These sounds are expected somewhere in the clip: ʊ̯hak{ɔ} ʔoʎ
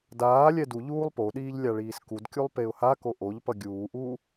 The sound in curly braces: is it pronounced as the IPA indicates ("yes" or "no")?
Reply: no